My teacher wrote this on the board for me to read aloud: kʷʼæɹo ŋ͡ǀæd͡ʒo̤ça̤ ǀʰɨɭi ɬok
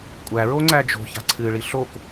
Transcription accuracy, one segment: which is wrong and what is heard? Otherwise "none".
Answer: none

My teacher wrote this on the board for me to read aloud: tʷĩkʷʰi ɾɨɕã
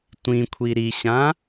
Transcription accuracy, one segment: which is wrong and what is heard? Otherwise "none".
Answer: ɨ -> i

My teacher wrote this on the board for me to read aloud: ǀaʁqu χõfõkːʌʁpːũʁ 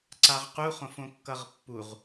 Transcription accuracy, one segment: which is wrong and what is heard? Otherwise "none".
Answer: ũ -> u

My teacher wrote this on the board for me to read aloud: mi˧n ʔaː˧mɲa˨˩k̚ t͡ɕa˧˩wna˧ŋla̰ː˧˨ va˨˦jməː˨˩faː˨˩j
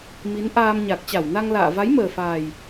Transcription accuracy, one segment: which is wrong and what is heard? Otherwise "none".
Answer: i˧ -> i˨˦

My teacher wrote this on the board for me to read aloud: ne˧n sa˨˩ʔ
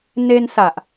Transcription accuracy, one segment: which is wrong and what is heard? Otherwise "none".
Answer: none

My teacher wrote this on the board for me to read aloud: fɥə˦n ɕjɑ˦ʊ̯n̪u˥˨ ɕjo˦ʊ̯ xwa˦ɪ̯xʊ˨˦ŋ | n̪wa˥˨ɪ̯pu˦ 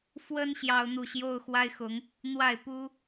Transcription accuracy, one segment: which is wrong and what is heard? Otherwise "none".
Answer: ɥ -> w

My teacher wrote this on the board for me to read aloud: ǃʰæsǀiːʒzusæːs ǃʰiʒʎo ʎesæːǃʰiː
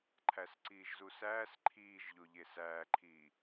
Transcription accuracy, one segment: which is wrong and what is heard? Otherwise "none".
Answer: i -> iː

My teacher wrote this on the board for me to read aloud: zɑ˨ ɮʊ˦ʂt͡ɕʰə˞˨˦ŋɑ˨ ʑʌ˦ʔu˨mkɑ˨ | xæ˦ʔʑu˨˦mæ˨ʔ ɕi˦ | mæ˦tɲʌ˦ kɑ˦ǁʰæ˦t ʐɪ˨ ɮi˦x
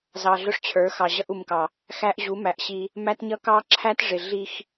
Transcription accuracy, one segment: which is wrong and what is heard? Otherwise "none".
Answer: ŋ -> x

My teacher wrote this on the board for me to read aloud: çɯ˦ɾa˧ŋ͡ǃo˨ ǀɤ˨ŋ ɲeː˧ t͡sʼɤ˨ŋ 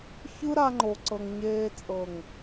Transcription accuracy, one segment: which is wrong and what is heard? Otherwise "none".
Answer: none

